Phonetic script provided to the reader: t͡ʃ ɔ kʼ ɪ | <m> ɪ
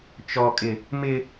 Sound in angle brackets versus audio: correct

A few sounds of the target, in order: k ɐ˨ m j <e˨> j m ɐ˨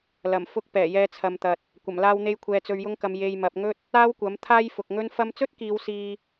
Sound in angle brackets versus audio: correct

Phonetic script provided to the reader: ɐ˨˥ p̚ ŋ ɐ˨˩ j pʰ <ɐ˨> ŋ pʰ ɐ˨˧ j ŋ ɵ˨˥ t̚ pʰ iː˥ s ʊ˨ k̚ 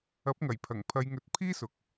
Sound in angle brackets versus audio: incorrect: ɐ˨˩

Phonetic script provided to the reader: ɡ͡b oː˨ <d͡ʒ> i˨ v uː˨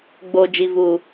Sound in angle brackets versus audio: correct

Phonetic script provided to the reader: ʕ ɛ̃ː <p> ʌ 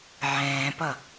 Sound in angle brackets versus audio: correct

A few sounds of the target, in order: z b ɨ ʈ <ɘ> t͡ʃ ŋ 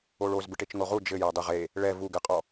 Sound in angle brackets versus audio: incorrect: e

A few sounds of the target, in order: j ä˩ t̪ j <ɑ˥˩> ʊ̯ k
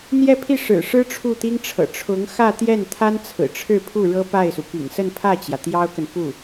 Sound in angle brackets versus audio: incorrect: ɑ˥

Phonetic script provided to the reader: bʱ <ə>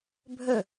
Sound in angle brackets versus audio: incorrect: ɵ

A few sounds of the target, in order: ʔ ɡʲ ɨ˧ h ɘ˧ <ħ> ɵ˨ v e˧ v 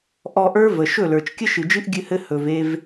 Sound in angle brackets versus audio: incorrect: h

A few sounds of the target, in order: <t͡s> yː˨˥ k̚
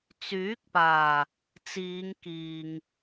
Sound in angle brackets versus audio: correct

